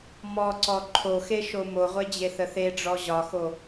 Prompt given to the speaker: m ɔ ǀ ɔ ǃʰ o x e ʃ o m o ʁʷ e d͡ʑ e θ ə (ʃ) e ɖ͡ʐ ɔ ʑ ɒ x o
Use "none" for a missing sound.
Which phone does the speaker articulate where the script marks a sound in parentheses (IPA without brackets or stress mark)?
θ